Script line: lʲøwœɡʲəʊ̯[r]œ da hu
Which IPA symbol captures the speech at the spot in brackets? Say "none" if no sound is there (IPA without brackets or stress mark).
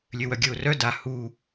r